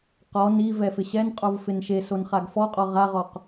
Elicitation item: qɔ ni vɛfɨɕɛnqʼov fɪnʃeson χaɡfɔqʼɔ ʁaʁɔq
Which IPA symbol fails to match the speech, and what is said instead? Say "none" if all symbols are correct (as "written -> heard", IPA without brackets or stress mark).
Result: ɨ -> ɪ